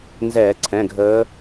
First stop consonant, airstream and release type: click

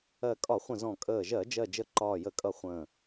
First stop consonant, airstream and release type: ejective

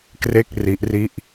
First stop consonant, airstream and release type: plain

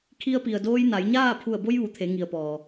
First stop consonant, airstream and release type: aspirated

